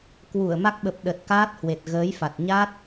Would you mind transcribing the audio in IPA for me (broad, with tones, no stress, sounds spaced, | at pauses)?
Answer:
k w u˧˩ ə̯ m a˦˥ k̚ ɓ ə˨˩ p̚ ɗ ə˨˩ t̚ k aː˦˥ t̚ h w e˨˩ t̚ ɣ əː˨˦ j f a˨˩ t̚ ɲ a˦˥ t̚